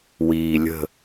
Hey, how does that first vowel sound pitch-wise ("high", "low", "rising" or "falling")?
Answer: low